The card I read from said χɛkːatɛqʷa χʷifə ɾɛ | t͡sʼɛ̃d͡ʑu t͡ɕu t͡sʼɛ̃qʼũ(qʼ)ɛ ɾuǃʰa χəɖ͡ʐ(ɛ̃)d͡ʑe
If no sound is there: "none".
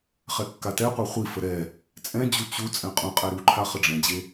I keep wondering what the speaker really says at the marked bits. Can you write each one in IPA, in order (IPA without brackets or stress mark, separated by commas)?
qʼ, ɛ̃